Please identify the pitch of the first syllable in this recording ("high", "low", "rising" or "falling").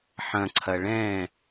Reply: low